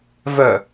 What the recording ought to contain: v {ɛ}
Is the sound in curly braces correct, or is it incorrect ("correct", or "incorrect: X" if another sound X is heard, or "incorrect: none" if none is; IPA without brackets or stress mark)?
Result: incorrect: œ